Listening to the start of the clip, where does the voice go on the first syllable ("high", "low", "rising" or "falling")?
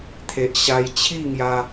low